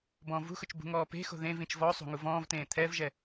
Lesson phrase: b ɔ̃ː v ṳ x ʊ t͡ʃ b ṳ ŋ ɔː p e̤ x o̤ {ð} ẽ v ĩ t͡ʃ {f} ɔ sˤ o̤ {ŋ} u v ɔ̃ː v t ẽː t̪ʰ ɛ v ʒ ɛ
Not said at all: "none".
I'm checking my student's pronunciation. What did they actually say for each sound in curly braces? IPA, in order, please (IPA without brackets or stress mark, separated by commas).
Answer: ð, v, ŋ